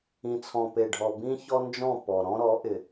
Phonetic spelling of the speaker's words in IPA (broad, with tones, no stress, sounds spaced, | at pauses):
ĩ˨ t͡sʰ ɔ̃˨ p e˨ ɖʱ ɔ˨ b ĩ˦ ç ɔ˦ n d͡ʒ ɔ̃˦˨ p ɔ˨ ɾ ɔ̃˦ ɾ ɔ˨˦ ʔ ɪ˨